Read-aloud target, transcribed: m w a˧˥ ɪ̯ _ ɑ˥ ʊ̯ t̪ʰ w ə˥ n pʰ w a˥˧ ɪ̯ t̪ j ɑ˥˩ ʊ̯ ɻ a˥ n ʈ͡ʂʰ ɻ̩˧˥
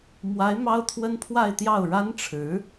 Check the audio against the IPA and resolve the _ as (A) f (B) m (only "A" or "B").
B